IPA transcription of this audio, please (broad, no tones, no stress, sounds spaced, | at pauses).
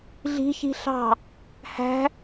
ɮ i̤ ç i̤ ɬ ɑ̤ | h æ̤